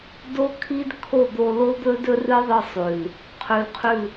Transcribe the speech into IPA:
d o˦ kʰ i˦ d kʰ o˦˨ d̪ o˧ l o˦ d̪ ɵ˦ d ɵ˦ r ɨ˦ ðˤ ɨ˧ sˤ ʉ˨ l | qʰ ʉ˧ l qʰ ʉ˦˨

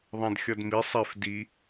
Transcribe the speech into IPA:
ðˤ ã d xʲ ʌ d m i sˤ ɛ f d i

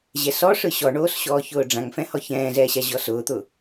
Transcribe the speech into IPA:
ʑ ɛ s ɔ ʂ ɯ ɕ ɔ ɳ oː s ɕ ɔː ç ʊː ɖ͡ʐ ã ŋ f ɛ̃ h ɔ ç ɛ̃ː z ɛː ɕ a ʑ ɔ s ʊː t̪ ʊ

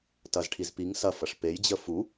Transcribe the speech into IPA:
t ɐ z ʈʰ i z p i ŋ s ɐ f ɐ ʂ p e j d͡ʑ ə f u

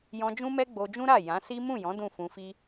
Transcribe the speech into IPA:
j ɔ̃˧ d͡ʒ ũ˦ m ɛ˦ ɡ͡b o˧ d͡ʒ ũ˦ ɾ a˦˨ j ã˨˦ s i˦ m ũ˦˨ j ɔ̃˨˦ d ũ˦˨ f ũ˧ f i˦

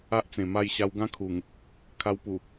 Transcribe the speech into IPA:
a˦ ʔ t͡s ẽ˨˩ m a˥˧ j ɕ a˧ w ɡ ã˦ kʰ u˨˩ ŋ | kʰ a˧ w p u˨˩

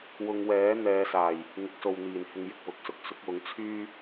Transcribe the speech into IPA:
w ʊ˧ ŋ w ɛː˨˥ n̪ ɛː˨˧ s aː˨˩ j | ŋ ɪ˨˥ k̚ s o˨ w n̪ iː˨˩ n h ɪ˧ ŋ j ɪ˨ k̚ w ʊ˨˥ k̚ s ʊ˨ k̚ s ʊ˨˥ k̚ w ʊ˨˥ ŋ t͡sʰ yː˥

